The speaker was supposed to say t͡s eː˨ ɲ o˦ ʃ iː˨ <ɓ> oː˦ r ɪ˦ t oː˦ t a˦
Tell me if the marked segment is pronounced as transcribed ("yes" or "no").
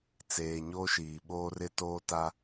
yes